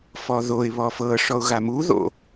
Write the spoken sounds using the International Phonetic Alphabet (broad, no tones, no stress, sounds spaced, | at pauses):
f ɔ ð o ɪ̯ β ɔ f ɤ ʂ ɔ ʊ̯ ɣ a m u ð o̰